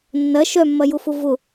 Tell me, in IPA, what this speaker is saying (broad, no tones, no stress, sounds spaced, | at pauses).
nː ɐ ʃ œ mː ɐ j ʊ f ʊ v ʊ